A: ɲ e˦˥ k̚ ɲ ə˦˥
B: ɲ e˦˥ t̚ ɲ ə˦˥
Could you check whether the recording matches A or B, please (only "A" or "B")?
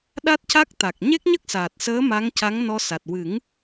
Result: A